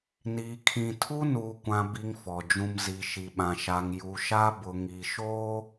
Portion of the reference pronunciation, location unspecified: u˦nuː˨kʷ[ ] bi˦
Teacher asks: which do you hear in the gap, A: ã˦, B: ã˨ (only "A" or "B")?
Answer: B